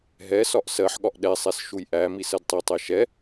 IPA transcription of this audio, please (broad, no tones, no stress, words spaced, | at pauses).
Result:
ɦɛ sɒʔsɜħɠɒʔ ɗɛsˤɛs ʃujʔæmis ɜdtˤitˤɛ ʃɛ